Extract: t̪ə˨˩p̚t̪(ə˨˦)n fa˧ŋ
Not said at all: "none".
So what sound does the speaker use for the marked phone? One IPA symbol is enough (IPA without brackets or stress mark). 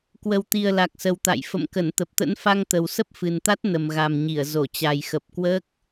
ə̰˧˥